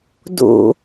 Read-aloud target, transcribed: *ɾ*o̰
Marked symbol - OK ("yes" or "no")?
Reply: no